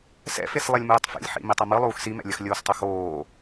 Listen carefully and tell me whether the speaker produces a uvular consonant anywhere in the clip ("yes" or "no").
no